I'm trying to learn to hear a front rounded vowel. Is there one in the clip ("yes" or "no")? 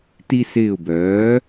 yes